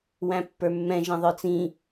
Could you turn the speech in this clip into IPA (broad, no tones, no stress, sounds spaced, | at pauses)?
w æ̃ pː ə˞ mː ɛ̃ ʒ ɛ̃ ðˤ ə˞ t͡s ĩ